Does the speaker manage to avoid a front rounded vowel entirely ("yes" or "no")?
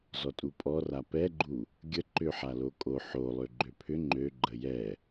no